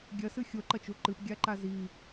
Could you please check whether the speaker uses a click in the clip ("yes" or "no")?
yes